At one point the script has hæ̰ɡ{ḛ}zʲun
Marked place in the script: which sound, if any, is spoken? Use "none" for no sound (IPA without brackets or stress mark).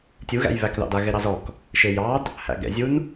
ɛ̰